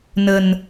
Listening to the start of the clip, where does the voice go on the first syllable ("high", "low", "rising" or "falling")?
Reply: low